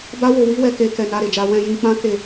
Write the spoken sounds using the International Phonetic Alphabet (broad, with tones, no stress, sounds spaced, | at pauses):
b a˦ w o˧ w i˦ w ɛ˧ k e˧ k ɛ˧ n a˧ ɾ e˨ d͡ʒ a˧ w ɛ̃˧ j ĩ˧ k͡p ã˦ k e˧